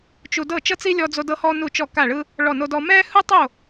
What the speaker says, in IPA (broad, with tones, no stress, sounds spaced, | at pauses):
t͡ʃ u˥ d ɤ˥˨ t͡ʃ ɤ˥ t͡s i˥ lʲ ɔ˥ d͡z o˥ d ɤ˥ h ɔ˥ n u˥˨ t͡ʃ ɔ˥˨ k a˥˨ ɭ ɯ˥ | ɭ ɔ˥˨ n o˥ d ɔ˥ m ɛ˥ h ɯ˥ tˤ o˥˨